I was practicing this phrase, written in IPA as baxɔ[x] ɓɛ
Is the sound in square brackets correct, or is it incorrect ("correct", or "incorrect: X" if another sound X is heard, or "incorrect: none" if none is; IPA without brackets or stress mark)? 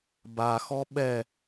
incorrect: none